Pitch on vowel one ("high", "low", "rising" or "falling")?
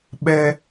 high